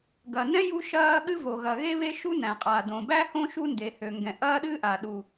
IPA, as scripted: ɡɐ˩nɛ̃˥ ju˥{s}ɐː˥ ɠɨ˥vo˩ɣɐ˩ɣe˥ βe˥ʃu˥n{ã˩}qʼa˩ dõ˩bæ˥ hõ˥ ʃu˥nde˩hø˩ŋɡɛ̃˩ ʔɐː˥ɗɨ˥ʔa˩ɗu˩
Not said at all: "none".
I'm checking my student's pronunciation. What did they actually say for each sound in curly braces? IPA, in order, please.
ʃ, æ̃˩

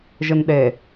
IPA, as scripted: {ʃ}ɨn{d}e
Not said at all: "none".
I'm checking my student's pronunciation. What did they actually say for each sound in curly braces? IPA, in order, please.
ʒ, ɗ

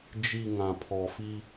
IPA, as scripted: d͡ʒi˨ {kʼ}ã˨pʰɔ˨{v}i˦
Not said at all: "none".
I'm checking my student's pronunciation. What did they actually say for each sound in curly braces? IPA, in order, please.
ŋ, f

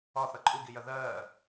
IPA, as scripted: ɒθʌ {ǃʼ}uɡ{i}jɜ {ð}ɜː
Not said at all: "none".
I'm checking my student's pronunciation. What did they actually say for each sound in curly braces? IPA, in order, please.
ǃʼ, i, ð

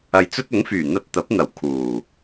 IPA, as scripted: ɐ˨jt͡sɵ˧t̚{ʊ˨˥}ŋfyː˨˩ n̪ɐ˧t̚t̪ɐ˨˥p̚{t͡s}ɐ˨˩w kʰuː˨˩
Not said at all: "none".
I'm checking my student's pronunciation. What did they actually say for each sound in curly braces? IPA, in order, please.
ʊ˨˥, n̪

